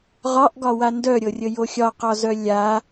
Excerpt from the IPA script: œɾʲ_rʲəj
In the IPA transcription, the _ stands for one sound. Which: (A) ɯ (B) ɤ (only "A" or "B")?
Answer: B